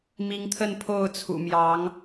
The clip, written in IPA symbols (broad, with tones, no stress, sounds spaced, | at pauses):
m i˨˦ ŋ t̪ʰ ə˥˨ n pʰ o˥˨ ʊ̯ t͡sʰ ṵ˨˩ m j ɑ˨˦ ŋ